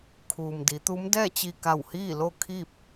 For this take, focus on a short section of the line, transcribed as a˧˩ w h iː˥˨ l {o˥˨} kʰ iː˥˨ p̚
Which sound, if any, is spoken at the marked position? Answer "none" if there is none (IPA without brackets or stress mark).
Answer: o˥˨